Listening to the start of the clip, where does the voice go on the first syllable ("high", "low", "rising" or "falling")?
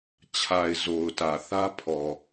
low